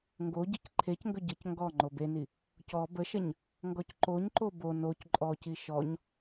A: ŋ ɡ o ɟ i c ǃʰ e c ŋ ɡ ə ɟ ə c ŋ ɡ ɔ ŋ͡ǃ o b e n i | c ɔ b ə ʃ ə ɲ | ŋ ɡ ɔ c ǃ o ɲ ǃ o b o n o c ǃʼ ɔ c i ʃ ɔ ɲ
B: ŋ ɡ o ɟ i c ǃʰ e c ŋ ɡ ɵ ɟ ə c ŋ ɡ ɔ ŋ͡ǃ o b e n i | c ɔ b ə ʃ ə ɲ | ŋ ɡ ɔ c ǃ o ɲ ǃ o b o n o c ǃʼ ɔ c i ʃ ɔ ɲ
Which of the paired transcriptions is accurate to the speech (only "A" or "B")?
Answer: B